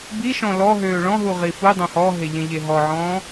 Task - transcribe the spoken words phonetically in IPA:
b i ʃ ɔ̃ l ɔ ɦ øː ɭ ɔ̃ ɦ u ʁ i f u dˤ õ h ɔ ɦ e ʎ ẽ ʎ e ɦ ɔ ʕ ɔ̃ː

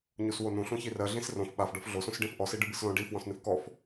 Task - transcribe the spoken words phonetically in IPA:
ɲ u s w o n ũ ɬ ũ ç i r ɜ ɮ ĩ s r õ f ɓ a f ɖ ɔ f ɮ o s ũ s ɖ ĩ f ʔ ɔ s i ɖ ɨ b ɨ s l õ ɖ i f w ɔ̃ s n ɨ f k ɔ f

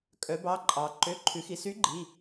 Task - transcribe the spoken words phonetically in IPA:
kʼ œ˩˧ b ɑ˩˧˩ ǃʼ ɑ˩ ǃ ø˩˧˩ ǃʰ ʉ˩˧ x i˩ s y˨˥ ɡ͡ǃ i˩˧˩

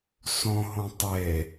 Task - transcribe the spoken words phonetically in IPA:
s õ ɦ õ tˤ e

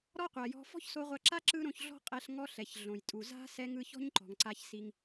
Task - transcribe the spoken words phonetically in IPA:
ɾ ɔ˥ qʷ a˩ j ɔ̤˧ f ɔ̤˥ ç s o˧ ʁʷ a˧ ǁ a˥ ǁ ɯ˥ ɾ õ˧ ç ɮ ɔ̤˥ qʼ ɛ˧ ɬ ŋ ɔ˥ ɬ ɛ˩ ç ɮ õ˩ j tʼ u˩ z a̤˥ s ɛ˥ ŋ ɯ˥ ç ɔ̤˥ ɲ ǃ ɔ̤˩ ŋ ǀ a˧ ç s i˧ ŋ

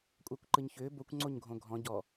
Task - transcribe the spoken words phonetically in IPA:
kʷʼ ɜ kʷ ǃ ɯ ɲ ç ʏː b o kʷ ŋ͡ǀ o ɲ ɡʱ õ ɡʱ ɔ̃ ɟ ɔ

